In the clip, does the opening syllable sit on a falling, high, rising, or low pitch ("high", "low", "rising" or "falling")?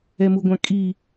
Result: low